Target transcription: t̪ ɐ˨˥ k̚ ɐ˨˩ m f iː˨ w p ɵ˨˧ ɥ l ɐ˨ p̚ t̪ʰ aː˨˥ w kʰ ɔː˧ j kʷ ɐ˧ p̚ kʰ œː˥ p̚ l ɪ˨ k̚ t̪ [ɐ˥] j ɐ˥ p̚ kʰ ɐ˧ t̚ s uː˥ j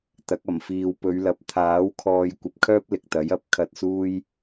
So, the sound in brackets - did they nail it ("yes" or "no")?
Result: no